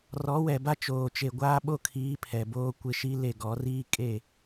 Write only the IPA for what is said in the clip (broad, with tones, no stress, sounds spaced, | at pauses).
r ɔ˨˦ w ɛ˨ b a˦ t͡ʃ oː˨ t͡ʃ e˨ ɡʷ aː˦ ɓ o˦ kʰ iː˨˦ pʰ ɛ˨ b oː˦ kʷ ɪ˦ ʃ i˦ l e˦˨ ɡ ɔ˨˦ r iː˦ kʼ e˦˨